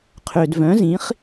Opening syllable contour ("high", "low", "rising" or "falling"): low